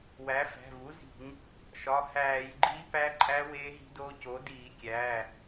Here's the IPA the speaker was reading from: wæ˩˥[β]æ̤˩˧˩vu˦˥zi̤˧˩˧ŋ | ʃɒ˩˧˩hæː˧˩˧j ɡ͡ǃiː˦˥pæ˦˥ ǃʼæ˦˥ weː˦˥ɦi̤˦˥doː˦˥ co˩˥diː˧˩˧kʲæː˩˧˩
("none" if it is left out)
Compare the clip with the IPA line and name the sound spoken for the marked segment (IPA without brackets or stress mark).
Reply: f